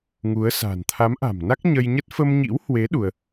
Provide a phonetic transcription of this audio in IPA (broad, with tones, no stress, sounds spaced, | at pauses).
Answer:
ŋ u˨˦ ə̯ s a̤˨˩ n t̪ʰ a˨˦ m ʔ a̤˨˩ m n a˦˥ k̚ ɲ ə˧ j ɲ ə˦˥ t̚ f ə˧ m ɲ ḭ˧˥ w h w e˨˦ ɗ u˧ ə̯